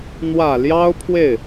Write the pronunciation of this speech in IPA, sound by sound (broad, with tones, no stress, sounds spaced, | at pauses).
n̪ w ä˨˩ l j ɑ˥ ʊ̯ pʰ w e˥˩ ɪ̯